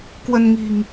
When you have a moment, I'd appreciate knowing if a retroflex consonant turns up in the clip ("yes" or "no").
no